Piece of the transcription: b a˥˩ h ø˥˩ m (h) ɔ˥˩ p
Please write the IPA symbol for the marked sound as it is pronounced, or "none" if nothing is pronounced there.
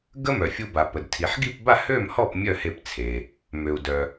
h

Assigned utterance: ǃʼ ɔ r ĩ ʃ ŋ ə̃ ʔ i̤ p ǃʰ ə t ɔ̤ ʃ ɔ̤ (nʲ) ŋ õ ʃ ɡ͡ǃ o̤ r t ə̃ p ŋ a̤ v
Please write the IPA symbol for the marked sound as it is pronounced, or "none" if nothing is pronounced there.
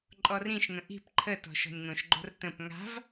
nʲ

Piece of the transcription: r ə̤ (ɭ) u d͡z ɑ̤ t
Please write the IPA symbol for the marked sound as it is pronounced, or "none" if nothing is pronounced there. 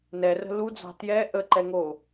l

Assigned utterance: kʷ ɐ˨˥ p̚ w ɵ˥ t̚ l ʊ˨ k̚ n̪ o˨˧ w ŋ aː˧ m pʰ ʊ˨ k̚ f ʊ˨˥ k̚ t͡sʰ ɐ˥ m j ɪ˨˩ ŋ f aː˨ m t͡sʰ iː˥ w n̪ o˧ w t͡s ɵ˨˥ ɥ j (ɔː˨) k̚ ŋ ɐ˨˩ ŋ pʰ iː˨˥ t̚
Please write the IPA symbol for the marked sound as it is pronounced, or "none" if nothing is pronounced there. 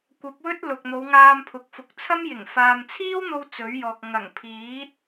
ɔː˨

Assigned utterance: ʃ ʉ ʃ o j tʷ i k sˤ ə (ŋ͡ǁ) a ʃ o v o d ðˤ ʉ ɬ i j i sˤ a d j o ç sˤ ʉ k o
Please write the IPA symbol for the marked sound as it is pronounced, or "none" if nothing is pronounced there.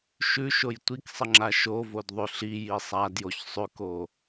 ŋ͡ǁ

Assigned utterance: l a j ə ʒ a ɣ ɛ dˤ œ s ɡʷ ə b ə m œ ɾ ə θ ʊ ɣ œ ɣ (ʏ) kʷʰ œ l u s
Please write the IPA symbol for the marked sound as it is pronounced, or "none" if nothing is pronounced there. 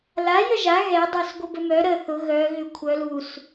ʏ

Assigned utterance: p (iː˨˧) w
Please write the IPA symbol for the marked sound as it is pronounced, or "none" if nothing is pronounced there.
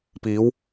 iː˨˧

